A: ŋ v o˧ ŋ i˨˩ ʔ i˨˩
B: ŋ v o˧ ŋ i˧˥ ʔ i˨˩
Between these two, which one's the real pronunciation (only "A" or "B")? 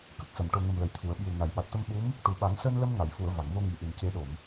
A